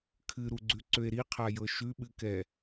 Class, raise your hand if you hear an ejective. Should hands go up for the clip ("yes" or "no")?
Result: no